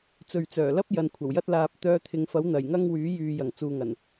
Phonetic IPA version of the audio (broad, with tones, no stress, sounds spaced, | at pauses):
t͡s ɵ˨ ɥ t͡s œː˨˩ l ɐ˥ p̚ j ɐ˨˧ n kʷʰ ɐ˨˩ w j ɐ˥ t̚ l aː˧ p̚ t̪ œː˧ t̪ʰ ɪ˨˧ ŋ f ɐ˨˥ w n̪ ɐ˨˩ j ŋ ɐ˥ ŋ w yː˨˥ j yː˨ j ɐ˨˩ ŋ t͡s uː˨ ŋ ɐ˨˩ n